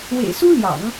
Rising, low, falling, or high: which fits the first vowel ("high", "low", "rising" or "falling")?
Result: low